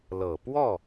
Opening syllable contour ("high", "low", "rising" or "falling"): low